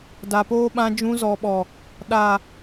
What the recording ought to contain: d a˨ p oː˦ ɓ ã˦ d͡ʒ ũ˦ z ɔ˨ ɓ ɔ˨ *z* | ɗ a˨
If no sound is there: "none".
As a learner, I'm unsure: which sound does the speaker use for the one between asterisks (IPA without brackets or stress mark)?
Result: none